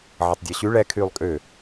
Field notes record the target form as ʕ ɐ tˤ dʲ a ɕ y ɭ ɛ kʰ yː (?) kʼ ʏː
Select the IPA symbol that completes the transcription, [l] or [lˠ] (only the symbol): lˠ